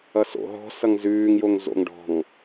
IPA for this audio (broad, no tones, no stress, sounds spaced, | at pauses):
ʌ s o̰ ɦ ɔ̤ s ʌ ŋ z ʉː ŋ j o ŋ z o̰ ŋ ɖ ɔ̤ ŋ